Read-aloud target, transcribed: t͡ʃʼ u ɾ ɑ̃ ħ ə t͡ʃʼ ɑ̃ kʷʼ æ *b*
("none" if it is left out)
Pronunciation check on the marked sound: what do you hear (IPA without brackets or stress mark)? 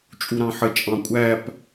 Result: p